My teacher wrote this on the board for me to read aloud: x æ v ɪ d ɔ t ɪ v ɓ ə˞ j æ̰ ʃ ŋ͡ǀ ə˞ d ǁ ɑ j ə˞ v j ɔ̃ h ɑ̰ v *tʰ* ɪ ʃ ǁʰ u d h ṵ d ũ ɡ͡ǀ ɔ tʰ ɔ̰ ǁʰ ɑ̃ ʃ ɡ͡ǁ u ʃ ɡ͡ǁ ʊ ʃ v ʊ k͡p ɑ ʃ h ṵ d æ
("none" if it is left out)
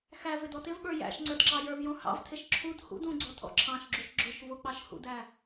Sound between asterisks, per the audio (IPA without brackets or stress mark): tʰ